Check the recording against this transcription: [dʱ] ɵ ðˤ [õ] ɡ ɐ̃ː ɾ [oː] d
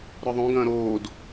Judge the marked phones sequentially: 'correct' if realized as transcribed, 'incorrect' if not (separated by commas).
incorrect, correct, correct